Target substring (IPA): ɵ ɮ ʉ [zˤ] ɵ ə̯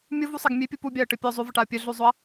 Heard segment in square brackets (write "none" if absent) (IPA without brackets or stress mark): zˤ